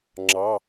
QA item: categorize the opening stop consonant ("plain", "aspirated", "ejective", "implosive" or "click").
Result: click